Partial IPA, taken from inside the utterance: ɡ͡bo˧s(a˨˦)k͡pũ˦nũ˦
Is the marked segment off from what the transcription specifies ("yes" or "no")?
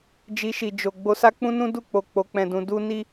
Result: yes